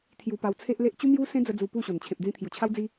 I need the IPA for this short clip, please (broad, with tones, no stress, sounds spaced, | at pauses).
t̪ʰ j u˧ p a˧ w t͡sʰ e˦ ʔ l e˦ ʔ t͡ɕ u˦ m j u˦ s ẽ˦ d͡z ə˧ d͡z u˧ p u˥˧ ɕ o˨˩ n t͡ɕʰ ẽ˨ p̚ d͡z ĩ˧ t̪ʰ j u˨˩ t͡ɕʰ a˦ w d͡z i˦